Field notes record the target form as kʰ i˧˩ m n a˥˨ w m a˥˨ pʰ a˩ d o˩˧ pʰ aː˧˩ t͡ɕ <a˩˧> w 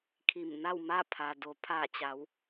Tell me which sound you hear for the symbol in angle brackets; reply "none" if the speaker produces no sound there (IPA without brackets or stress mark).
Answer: a˩˧